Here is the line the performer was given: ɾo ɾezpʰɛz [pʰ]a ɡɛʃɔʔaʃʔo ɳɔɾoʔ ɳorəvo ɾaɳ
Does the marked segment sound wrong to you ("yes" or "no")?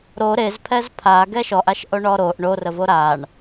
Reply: no